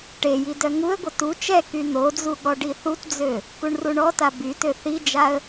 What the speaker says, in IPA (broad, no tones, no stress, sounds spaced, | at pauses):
ʈ e j i d œ ŋ u ə̯ ɡʷ ə t u t͡ʃ ɛ k y n̪ o d͡z u ɠ ɔ ɖ i θ u t d͡z ø | k u ɳ r u ɳ ɔ t a b y t ø θ i d͡ʒ a ə̯